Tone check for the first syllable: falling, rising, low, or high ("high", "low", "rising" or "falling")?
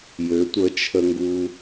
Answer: rising